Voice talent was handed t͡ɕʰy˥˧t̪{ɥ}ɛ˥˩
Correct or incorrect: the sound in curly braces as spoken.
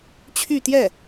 incorrect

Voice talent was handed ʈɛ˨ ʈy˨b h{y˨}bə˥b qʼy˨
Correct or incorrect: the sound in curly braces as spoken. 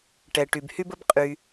incorrect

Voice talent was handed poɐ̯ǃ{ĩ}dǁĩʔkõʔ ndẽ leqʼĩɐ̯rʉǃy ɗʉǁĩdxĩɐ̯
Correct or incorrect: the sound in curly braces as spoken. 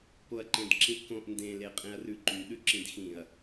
incorrect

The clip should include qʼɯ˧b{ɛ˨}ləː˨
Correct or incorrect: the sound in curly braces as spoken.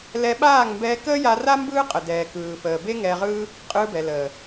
correct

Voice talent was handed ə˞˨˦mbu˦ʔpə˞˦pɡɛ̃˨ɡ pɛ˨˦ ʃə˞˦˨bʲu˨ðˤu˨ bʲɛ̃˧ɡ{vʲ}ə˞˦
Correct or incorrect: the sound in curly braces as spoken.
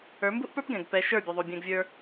correct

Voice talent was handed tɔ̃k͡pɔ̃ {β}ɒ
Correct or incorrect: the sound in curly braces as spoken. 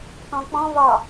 correct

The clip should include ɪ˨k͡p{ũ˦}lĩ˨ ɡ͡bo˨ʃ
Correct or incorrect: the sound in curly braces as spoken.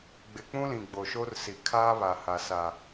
correct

